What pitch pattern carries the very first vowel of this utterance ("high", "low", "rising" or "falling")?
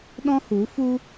high